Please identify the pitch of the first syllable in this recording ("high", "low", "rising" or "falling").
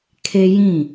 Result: high